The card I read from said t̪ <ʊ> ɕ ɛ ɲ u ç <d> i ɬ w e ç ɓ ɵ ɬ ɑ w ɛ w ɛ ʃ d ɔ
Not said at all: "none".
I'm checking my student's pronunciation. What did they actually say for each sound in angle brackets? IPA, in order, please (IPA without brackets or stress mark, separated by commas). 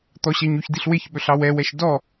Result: ɔ, d